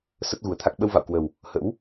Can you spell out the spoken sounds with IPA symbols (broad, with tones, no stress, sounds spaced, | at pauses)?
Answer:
s ə˦˥ t̚ ɣ u˨˩ ə̯ t̪ʰ a˦˥ k̚ ɓ ə˧ w v a̰˧˨ w k w ə˨˩ w | h ə̰˧˥ w